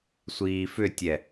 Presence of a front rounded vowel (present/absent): present